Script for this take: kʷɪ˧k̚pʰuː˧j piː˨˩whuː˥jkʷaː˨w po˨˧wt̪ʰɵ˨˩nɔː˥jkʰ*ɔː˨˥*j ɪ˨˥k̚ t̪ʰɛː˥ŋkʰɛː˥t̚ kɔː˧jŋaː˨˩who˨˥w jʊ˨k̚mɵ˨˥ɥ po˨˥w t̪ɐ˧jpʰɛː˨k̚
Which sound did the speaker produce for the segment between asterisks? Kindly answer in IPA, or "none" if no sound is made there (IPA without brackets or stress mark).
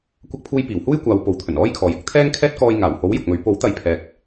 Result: ɔː˨˧